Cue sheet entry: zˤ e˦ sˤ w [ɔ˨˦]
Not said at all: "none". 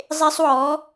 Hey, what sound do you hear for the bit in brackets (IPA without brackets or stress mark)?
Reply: ɔ˨˦